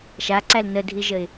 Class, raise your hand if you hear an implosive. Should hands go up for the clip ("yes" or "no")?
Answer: no